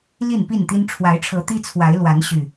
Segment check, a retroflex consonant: present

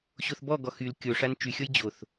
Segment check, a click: absent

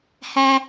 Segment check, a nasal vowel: absent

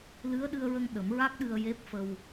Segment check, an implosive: present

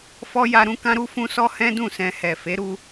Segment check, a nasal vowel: present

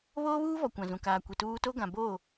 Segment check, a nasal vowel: present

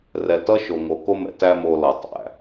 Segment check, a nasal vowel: absent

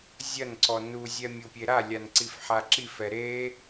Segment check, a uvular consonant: absent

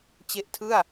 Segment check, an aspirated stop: present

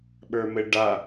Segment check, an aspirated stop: absent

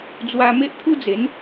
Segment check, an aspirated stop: present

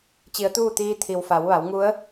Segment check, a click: absent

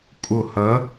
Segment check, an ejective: present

